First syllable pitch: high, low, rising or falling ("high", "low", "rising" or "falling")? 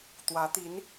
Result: rising